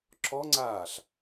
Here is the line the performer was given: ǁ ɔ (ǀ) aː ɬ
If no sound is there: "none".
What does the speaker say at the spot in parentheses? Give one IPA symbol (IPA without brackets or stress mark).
ŋ͡ǀ